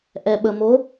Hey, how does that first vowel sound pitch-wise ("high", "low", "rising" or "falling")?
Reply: low